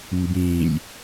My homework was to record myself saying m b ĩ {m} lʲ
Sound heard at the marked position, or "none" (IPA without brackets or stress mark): none